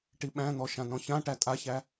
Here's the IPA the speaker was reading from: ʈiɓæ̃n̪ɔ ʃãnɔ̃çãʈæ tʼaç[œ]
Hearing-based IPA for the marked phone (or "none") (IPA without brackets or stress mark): æ